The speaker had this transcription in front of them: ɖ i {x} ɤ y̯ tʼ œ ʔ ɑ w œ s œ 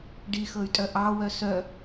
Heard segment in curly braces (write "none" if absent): x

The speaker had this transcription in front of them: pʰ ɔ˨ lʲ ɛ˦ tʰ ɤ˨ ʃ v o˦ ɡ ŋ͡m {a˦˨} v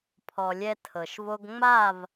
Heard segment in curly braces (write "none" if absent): a˦˨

